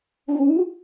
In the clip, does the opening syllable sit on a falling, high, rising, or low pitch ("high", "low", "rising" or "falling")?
rising